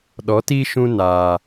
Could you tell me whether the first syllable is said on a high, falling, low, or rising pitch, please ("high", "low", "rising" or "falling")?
rising